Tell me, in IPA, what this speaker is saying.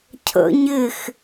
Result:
cʰ ə̰ ɲ ɪ x

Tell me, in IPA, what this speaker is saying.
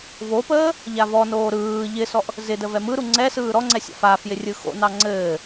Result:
v o p əː | ʎ a v ɔ n oː ɾ ɯː ʎ ɪ s ɔ ʔ | z ɪ d ə v ɛ m ɯ ɾ u ŋ͡ǀ ɛ s ɯː ɾ ɔ ŋ͡ǀ ɛ sʲ ɑ̰ f a f j ɪ rʲ ɯ x o̰ n ɑ ŋ͡ǀ ɘː

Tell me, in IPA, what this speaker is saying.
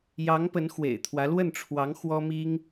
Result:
j ɑ˧˥ ŋ p ə˧˥ n x w ḛ˨˩ ɪ̯ t̪ʰ w ä˧˥ l w ə˥˩ n ʈ͡ʂʰ w ɑ˧˥ ŋ x w ɔ˥ m i˥ ŋ

